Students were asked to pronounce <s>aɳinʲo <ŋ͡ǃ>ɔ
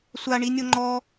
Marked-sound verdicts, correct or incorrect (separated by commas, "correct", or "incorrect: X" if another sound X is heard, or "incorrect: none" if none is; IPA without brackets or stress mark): incorrect: sʷ, correct